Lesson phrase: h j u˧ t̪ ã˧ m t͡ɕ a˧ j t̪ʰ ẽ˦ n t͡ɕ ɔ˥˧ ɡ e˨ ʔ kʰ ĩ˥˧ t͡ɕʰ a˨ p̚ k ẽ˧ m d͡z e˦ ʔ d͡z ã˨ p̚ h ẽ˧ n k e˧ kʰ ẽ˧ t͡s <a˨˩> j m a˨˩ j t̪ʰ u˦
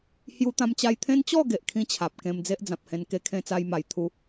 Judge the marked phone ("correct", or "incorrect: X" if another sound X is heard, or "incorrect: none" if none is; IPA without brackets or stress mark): incorrect: a˧